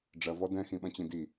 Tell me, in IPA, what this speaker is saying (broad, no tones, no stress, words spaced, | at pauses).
ɖ͡ʐɐ vɔdɛ̃ xĩɓɐ̃t͡ɕĩdi